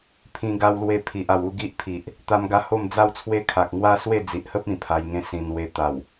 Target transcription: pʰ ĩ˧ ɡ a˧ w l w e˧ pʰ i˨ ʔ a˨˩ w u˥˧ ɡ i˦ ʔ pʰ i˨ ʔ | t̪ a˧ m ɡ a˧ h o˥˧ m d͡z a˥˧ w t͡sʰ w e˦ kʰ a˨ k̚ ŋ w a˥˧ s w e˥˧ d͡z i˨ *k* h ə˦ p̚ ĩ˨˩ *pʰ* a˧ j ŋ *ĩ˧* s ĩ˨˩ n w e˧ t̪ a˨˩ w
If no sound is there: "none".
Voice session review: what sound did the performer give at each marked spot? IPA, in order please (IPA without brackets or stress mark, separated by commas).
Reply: ʔ, pʰ, ẽ˧